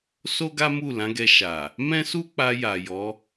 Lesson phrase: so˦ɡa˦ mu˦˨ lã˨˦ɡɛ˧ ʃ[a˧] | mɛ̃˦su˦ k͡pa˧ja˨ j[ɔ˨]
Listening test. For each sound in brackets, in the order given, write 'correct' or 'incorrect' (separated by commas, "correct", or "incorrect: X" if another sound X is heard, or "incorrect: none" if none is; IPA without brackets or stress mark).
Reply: incorrect: a˨, incorrect: ɔ˨˦